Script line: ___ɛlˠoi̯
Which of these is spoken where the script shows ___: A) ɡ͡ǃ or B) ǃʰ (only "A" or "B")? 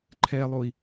B